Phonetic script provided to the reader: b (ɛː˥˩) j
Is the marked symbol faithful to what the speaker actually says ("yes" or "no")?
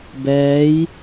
no